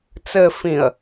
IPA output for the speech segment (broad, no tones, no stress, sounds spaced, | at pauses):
t͡s ɘ f ĩ ə̯